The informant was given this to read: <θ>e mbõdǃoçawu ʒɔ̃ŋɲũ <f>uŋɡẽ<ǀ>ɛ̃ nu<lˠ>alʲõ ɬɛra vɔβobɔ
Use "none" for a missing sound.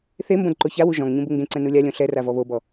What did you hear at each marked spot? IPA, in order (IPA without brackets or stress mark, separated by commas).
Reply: θ, b, ǀ, lʲ